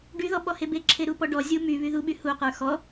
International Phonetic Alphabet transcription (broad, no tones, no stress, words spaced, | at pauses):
ɖyðɔ ɓɔhebeǁʰe ɾupɔɖɔzʲu my βyðuɓy huqə˞ xɔ